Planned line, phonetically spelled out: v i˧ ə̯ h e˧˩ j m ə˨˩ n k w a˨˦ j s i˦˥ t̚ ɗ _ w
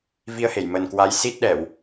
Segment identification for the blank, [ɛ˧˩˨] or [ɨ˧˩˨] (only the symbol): ɛ˧˩˨